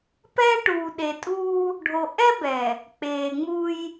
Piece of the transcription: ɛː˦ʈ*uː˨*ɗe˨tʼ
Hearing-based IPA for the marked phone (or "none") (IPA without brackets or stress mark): uː˨